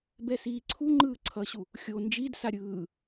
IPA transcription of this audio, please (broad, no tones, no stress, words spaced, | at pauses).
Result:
bɛsiːǀʰu ŋ͡ǃɯːǀʰʌɕu | xʲo nd͡ʒidsa ɾʲɯː